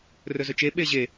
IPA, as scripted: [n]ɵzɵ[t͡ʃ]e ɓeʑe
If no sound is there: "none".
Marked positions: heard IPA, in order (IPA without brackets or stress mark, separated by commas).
r, t͡ʃ